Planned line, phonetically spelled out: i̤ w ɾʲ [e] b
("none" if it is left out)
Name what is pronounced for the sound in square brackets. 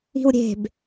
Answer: e̤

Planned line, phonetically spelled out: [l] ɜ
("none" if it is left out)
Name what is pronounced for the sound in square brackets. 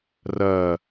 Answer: r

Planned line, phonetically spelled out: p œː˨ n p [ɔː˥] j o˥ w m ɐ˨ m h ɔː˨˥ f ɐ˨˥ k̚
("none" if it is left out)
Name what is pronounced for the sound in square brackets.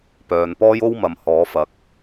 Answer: ɔː˥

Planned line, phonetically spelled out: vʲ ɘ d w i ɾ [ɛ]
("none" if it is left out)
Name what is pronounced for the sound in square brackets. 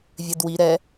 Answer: ɛ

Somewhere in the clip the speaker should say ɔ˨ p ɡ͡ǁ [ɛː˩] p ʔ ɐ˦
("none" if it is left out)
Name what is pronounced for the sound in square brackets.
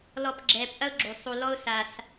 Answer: ɛː˩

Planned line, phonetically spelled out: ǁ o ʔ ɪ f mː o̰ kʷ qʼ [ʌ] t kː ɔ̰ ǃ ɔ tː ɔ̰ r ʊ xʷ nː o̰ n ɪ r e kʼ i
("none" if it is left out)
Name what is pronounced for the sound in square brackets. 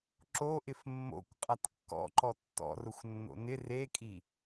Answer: a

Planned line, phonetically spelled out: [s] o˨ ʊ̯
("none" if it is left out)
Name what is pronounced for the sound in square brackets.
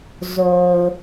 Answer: z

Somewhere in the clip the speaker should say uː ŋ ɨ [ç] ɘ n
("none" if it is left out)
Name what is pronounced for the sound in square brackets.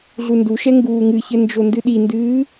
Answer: ç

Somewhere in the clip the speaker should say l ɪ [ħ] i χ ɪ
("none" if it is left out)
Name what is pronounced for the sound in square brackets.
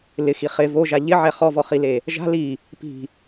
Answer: x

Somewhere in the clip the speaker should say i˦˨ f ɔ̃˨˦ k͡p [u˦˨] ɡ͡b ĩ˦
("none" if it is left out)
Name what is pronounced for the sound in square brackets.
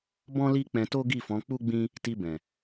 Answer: u˦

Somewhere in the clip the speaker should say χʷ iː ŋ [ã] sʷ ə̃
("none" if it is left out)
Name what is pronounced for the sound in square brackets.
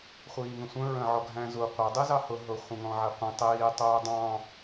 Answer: ə̃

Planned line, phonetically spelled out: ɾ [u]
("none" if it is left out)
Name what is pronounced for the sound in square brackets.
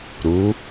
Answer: u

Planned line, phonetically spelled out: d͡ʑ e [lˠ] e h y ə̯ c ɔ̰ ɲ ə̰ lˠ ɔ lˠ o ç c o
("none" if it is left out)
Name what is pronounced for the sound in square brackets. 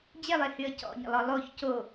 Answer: lˠ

